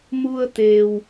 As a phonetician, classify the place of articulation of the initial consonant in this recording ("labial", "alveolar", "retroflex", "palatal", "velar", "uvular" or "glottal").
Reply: labial